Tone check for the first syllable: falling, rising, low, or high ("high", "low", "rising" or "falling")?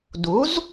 rising